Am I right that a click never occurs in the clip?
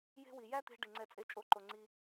no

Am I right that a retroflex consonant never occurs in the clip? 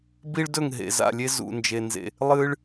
no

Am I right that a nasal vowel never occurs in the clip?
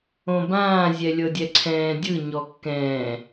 no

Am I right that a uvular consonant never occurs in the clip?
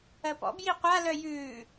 no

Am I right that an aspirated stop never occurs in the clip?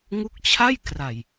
no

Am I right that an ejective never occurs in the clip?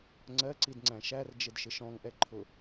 yes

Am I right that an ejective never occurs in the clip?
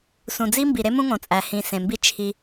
no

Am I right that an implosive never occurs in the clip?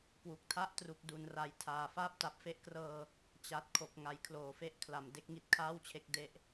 yes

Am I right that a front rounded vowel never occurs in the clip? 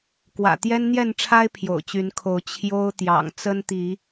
no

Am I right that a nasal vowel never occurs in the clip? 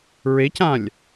no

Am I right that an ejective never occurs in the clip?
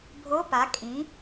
no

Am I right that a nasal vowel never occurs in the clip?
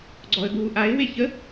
yes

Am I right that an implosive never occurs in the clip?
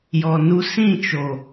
yes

